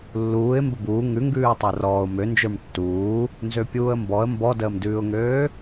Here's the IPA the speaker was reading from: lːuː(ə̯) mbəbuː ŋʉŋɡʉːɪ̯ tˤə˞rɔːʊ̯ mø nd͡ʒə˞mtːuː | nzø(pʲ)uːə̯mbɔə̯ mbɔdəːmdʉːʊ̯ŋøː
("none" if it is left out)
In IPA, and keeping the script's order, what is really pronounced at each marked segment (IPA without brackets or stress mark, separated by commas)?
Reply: ɪ̯, pʲ